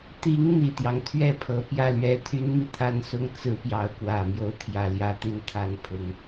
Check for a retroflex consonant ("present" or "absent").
absent